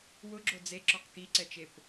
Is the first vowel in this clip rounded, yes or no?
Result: yes